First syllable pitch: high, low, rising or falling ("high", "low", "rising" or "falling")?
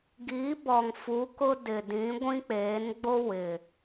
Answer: rising